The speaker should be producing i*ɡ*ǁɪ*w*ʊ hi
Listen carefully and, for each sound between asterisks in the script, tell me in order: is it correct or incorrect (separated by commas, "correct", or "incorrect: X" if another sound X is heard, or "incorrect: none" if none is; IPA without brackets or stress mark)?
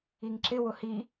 incorrect: ŋ, correct